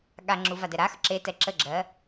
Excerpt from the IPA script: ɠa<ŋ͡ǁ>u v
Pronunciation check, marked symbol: correct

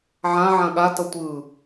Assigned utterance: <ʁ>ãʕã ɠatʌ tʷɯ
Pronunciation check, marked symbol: incorrect: ʕ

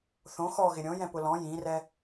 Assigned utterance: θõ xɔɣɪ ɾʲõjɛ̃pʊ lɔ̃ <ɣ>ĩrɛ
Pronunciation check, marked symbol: incorrect: j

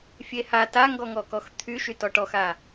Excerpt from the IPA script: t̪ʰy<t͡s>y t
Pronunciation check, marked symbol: incorrect: ʃ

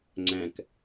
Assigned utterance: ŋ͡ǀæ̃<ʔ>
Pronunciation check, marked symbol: incorrect: k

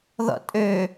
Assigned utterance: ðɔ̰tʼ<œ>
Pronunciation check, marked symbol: incorrect: ø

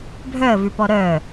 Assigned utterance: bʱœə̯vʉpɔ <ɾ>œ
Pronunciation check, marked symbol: correct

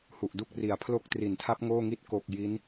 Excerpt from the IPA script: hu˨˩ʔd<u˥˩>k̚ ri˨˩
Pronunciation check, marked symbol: correct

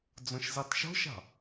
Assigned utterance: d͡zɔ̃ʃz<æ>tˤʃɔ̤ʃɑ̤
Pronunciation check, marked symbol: correct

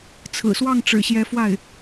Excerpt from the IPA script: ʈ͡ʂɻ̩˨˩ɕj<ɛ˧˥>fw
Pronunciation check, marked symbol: correct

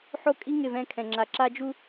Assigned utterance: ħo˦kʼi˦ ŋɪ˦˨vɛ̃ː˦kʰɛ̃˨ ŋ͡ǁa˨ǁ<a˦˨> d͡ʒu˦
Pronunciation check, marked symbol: incorrect: a˦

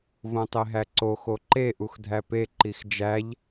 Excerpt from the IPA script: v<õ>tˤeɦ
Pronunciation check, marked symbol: correct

